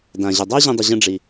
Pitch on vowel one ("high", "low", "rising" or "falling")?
low